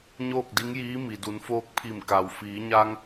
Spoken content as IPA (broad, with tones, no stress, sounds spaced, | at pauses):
ɲ oː˥˨ k̚ d i˧˥ ŋ j iː˧˥ m i˩ d u˩˧ n f oː˧˥ k̚ pʰ i˧˩ m k a˩ w f iː˩˧ ɲ a˧ ŋ